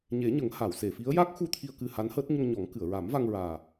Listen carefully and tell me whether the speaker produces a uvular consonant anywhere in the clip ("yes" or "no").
no